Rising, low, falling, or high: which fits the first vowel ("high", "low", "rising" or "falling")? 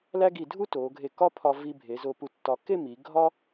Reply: high